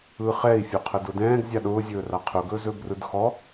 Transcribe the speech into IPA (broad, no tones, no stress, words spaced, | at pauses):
ɯχɛi̯ fʲoqʰədʊdɛ̃ːɡ zʲaɗʊː zʲɵːraqʰʊ ɡɵːzɵːbrɯdxɔ